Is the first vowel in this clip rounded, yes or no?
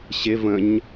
no